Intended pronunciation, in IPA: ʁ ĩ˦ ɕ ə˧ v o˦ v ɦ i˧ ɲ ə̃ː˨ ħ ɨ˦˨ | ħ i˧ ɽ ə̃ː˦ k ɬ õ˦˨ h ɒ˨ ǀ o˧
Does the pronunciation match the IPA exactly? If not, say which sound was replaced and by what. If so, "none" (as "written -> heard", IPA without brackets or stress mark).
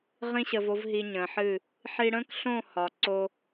none